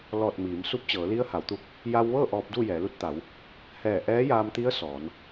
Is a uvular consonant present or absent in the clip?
absent